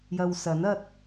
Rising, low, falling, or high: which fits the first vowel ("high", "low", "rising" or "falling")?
low